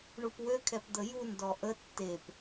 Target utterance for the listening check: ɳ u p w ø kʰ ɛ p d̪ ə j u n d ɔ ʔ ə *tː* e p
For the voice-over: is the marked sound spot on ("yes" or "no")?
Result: yes